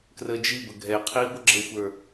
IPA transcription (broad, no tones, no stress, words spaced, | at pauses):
krəːd͡ʒibə ɡʱɛ qʰiːɡʷəɡ͡ǁəxʷə˞